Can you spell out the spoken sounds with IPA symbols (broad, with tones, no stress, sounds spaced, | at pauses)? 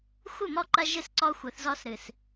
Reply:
xʷ ɨ˦˨ m ɔ˦˨ ǃ ɐ˦ ʒ ɨ˦˨ s ǀ ɔ˦ xʷ ɘ˨˦ θ z ɔ˦ s ɾ ɨ˨ s